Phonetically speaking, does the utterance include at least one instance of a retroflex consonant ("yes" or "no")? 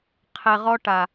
yes